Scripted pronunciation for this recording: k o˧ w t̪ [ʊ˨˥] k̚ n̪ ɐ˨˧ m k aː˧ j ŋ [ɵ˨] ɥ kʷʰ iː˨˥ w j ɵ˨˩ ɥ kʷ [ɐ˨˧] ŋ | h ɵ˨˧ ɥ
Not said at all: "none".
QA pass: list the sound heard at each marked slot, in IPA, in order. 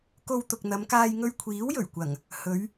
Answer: ʊ˨, ɵ˧, ɐ˨˩

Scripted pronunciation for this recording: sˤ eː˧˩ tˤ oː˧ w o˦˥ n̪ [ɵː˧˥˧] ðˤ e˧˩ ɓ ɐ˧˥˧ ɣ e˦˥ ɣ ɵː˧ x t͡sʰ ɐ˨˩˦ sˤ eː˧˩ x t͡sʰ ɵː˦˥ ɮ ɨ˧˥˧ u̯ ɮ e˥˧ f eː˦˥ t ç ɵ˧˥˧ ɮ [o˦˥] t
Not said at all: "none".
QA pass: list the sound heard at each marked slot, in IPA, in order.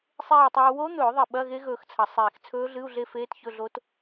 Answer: ɵː˨˩˦, o˦˥

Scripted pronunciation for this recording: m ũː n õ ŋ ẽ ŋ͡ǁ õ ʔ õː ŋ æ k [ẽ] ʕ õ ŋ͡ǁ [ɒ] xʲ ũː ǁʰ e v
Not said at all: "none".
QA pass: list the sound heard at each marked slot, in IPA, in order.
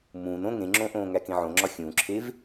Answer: ẽ, ɒ

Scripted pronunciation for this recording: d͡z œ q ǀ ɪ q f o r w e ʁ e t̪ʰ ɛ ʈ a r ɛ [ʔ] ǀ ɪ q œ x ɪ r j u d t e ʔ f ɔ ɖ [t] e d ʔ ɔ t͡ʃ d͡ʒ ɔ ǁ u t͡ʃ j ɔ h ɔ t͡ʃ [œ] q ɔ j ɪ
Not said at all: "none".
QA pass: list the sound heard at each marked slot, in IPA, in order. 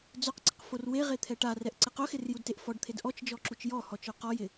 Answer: ʔ, t̪ʰ, œ

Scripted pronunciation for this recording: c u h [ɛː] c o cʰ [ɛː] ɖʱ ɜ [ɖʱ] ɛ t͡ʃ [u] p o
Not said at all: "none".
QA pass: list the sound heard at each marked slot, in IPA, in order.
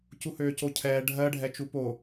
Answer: øː, ɛː, ɖʱ, u

